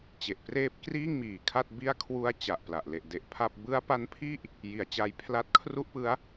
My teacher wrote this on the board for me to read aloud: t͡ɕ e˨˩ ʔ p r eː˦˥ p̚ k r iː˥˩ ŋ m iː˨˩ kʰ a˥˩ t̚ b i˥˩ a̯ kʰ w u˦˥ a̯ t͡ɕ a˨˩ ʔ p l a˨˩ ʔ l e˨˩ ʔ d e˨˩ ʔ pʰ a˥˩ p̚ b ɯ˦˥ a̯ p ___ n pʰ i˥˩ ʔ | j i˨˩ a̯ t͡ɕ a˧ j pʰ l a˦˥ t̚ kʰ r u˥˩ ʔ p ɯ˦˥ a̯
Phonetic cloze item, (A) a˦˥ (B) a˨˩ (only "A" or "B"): A